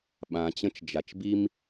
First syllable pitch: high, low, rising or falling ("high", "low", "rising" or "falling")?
low